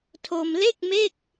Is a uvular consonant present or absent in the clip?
absent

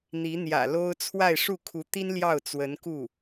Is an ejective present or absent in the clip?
absent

